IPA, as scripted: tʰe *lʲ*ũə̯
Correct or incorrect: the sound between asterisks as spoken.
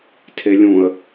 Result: correct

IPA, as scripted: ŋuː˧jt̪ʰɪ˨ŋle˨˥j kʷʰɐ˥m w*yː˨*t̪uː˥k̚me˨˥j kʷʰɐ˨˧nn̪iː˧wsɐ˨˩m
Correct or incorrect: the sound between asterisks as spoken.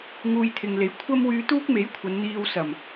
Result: incorrect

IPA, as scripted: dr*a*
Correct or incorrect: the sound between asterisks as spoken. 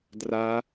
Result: correct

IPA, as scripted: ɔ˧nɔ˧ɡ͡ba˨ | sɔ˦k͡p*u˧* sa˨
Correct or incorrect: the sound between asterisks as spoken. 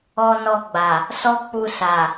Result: correct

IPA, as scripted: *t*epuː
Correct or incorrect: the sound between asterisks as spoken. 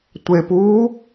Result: incorrect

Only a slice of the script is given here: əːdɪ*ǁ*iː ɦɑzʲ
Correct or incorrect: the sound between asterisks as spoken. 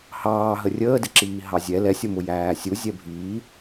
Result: correct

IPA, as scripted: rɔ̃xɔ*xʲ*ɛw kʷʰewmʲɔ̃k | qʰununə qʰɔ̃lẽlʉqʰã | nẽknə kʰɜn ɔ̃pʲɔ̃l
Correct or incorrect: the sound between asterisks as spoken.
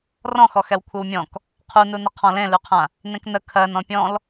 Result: incorrect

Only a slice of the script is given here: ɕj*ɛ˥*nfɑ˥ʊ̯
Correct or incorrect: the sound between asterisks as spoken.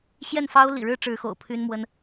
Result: incorrect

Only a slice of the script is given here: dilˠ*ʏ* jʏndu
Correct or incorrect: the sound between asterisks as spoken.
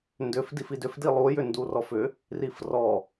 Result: incorrect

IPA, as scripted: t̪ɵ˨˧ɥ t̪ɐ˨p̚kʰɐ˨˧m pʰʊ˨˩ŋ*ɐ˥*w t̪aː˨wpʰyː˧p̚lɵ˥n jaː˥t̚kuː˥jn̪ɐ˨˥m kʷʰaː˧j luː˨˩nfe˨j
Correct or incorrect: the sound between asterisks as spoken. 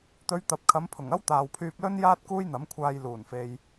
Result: correct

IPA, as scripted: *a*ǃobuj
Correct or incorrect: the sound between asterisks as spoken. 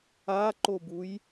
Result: correct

